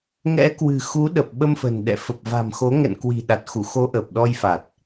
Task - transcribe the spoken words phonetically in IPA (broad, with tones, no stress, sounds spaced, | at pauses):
ŋ ɛ̰˧˥ k w ɨ̤˨˩ x u˨˦ ɗ ə˨˩ p̚ ɓ ə˧ m f ə̤˨˩ n ɗ ɛ̰˧˨ f ə˨˩ p̚ v a̤˨˩ m x o˨˦ ŋ ɛ̰˧˨ n k w i̤˨˩ ɗ a˨˩ t̚ x u˧˩ x o˨˦ ʔ ə˨˩ p̚ ɗ ɔ˧ j f a˨˩ t̚